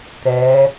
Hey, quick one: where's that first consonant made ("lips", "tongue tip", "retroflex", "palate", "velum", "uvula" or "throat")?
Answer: tongue tip